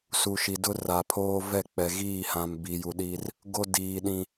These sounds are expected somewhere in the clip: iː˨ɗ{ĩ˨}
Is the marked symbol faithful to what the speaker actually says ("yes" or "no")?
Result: yes